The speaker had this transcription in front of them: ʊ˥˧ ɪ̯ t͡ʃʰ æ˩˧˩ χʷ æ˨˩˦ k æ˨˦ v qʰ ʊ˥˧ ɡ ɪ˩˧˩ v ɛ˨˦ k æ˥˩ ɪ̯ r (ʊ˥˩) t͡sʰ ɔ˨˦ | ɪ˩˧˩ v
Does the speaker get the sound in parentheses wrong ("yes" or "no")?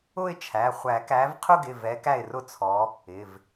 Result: no